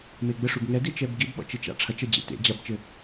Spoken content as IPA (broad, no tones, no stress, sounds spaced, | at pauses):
m e ɡ͡b ɘ ʂ u b ŋ ɛ d i t͡ʃ ɛ b ɡ i b ɓ ɔ̰ t͡ʃ i t͡ʃ a̰ ʈ͡ʂʰ ɐ t͡ʃ ɐ d͡ʑ ḛ t ḛ d͡ʑ ɐ b t͡ʃ ɘ